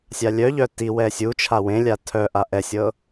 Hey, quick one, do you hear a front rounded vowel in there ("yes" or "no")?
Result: yes